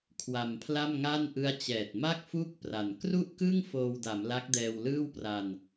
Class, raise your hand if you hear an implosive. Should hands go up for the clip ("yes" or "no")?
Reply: no